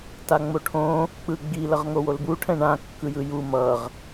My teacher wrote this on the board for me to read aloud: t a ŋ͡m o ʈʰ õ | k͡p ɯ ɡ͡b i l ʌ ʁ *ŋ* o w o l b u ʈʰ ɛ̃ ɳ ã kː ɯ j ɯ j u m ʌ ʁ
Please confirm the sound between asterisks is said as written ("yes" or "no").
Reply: yes